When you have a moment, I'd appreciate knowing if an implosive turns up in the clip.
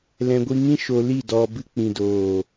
no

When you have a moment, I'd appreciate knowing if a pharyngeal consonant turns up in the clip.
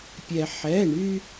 yes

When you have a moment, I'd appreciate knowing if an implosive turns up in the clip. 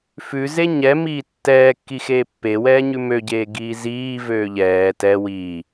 no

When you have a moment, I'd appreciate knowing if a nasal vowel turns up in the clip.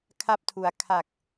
no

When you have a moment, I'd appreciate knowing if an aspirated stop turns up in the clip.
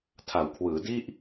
yes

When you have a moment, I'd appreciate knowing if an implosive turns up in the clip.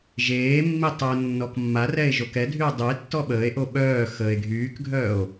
yes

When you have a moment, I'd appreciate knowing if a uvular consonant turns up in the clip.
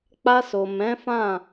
no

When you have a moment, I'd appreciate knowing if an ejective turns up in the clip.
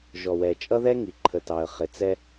yes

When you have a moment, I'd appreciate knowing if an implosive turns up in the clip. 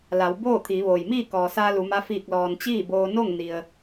no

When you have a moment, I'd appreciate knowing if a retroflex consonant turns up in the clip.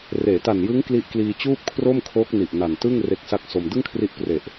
no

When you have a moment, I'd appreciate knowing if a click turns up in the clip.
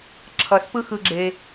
yes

